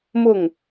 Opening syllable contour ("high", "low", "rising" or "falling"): falling